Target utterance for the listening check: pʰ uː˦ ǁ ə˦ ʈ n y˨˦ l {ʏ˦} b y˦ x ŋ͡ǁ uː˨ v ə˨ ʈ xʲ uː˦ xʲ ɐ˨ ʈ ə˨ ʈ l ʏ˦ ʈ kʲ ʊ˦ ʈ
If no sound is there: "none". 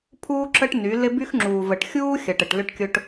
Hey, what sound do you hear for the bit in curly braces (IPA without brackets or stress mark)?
ɪ˦